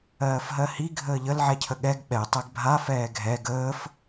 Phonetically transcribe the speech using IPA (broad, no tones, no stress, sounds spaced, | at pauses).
ɜː f ɦ ɜ h i ɡʱ əː ʎ ə l ʕ ɛ cʰ ə ɠ ɛ ɡ ɓ ɛ tˤ ɛ ɡ bʱ a f ɛː ɡʱ ɛ ɡ əː f